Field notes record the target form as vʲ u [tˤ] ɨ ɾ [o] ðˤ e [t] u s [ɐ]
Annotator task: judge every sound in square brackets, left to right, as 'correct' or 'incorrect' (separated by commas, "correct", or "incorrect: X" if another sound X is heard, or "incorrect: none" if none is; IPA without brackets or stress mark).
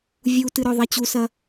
incorrect: t, incorrect: ɔ, incorrect: t͡ɕ, correct